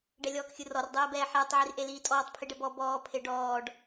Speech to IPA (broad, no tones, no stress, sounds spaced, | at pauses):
ɖ ɛ lʲ ɔː k xʲ ɯ r ɔ r dˤ ɛː b ɛː ħ ɛː tˤ ʕ i r ʔ e l iː tʼ ɔː tˤ pʰ i ɖ ɛ b ɔ b ɔː pʰ e ɖ ɔː ɖ